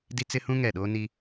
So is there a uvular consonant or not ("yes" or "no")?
no